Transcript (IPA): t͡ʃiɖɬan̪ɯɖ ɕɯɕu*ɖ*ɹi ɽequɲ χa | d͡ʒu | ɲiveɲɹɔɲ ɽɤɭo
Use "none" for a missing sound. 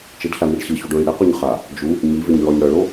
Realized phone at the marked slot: ɖ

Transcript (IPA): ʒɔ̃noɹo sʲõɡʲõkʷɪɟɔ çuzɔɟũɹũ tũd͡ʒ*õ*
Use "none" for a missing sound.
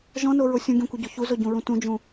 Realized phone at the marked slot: ũ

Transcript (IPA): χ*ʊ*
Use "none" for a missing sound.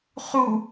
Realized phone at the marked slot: u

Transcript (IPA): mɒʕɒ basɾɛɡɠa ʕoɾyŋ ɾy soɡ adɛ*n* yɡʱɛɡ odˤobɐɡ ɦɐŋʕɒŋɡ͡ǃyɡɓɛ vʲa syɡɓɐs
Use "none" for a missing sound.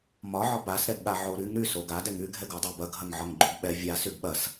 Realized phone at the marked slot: ŋ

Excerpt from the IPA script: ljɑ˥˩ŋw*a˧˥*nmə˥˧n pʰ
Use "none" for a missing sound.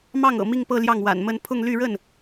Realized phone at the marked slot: a̰˨˩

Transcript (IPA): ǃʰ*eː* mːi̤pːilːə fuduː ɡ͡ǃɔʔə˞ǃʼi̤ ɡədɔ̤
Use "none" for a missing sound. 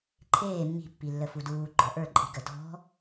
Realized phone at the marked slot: eː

